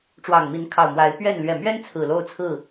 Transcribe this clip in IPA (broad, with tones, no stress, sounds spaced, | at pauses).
ʈ͡ʂ w ɑ˨˩ ŋ m i˨˦ n kʰ ɑ˨˩ ʊ̯ m w a˨˦ ɪ̯ p ɥ ɛ˥˨ n l ɥ ɛ˨˩ m ɥ ɛ˦ n t͡sʰ ɹ̩˨˩ l o˦ ʊ̯ t͡sʰ ɹ̩˥˨